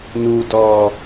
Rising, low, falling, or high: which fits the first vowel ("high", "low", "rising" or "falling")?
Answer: low